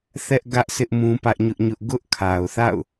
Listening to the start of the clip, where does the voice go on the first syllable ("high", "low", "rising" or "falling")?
high